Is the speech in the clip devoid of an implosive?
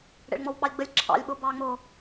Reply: no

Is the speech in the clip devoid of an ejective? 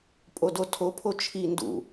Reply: no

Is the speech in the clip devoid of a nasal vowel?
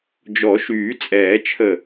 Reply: yes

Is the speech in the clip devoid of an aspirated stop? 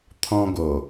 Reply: no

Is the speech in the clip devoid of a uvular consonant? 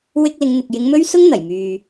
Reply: yes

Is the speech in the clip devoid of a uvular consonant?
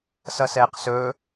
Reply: no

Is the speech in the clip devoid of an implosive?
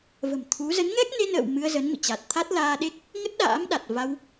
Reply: no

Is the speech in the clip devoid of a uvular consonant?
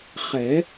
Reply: no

